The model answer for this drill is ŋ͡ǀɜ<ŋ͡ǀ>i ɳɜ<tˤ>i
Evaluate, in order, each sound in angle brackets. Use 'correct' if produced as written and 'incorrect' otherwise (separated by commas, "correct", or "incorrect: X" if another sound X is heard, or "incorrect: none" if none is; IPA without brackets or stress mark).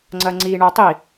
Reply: correct, correct